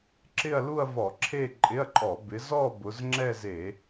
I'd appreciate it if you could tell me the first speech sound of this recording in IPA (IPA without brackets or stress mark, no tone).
ǁ